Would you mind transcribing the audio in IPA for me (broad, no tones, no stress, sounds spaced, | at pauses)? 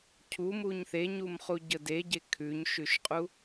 cʰ u m u ɲ θ e ɲ u m χ u ɟ ə d e ɟ e kʰ ʉ ɲ ʃ ʉ ʃ qʼ u